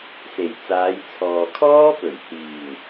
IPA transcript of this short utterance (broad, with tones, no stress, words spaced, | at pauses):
se˨˩jt͡saː˨˧jt͡sʰɔː˨ kʰɔː˥pɵ˨˩ɥ hiː˨˩ŋ